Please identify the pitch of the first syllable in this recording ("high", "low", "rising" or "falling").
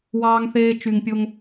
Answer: low